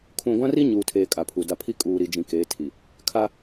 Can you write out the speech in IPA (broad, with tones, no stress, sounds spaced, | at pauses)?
kʰ ũ˨ ɡʷ ã˦ r i˦ ɲ uː˨ tʰ eː˨ kʼ a˨ pʰ u˨ d a˦ pʰ i˦ kʼ uː˨ ɾ i˨ d͡ʒ ĩ˨ k eː˨˦ tʰ i˨ | kʰ a˦